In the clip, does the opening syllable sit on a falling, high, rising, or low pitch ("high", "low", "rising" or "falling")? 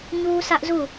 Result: high